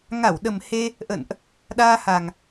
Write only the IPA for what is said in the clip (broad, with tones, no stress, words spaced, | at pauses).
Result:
ŋa˧˩wɗə˨˩mhe˧ | ʔə̰˧˨nʔ | ɗaː˧ha˨˩ŋ